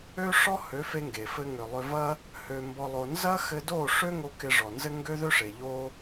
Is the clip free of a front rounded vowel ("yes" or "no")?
no